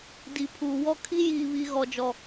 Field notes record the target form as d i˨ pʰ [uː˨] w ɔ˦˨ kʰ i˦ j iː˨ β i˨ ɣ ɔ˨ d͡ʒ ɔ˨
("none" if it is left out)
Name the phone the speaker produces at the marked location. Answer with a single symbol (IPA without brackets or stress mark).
uː˨